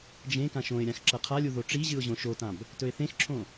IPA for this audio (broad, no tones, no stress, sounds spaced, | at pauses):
d͡ʒ ẽ k ã ʃ õ ɪ̯ ɾʲ ã x ǁ ɐ qʰ a lʲ u ð o ʈ͡ʂ i ʑ ɨ ʊ̯ ʑ õ ʃ o t ã b | t ɵ ɪ̯ θ ẽ x ǁʰ õ